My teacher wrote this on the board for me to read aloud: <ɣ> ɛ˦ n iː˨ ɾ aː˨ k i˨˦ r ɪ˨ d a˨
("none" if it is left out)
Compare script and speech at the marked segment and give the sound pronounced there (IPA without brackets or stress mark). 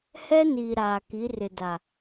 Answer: h